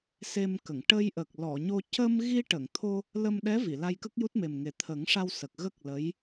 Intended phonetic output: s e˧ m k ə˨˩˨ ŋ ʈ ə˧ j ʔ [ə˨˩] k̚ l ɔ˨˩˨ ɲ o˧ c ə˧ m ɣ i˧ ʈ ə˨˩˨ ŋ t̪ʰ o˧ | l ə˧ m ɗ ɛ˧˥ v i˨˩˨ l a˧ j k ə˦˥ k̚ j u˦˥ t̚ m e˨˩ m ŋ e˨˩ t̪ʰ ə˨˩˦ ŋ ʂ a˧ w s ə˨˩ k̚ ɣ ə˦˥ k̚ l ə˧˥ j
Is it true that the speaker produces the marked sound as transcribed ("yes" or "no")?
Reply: yes